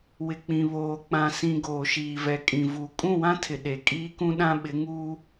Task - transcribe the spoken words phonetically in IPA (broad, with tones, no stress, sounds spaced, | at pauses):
w ɪ˨ k͡p ĩ˨ β oː˨ k͡p ã˨ s ĩ˨ ɡ oː˨ ʃ iː˨ v ɛ˨ kʼ ĩ˨ v u˨ kʼ ũ˦˨ w ã˦ tʰ ɪ˨ ɗ e˨ kʼ iː˦ k ũ˦ ɗ ã˦ ɓ ɪ˨˦ ŋ uː˦